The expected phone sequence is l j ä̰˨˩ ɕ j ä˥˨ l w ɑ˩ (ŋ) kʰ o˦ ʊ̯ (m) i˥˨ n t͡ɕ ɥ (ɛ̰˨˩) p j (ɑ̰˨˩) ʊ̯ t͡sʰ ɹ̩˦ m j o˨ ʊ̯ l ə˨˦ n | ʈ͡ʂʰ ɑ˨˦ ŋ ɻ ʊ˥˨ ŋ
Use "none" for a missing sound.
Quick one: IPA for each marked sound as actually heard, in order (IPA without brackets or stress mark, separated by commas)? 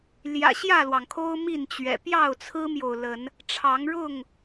ŋ, m, ɛ̰˨˩, ɑ˥˨